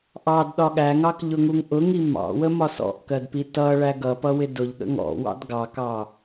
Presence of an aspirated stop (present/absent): absent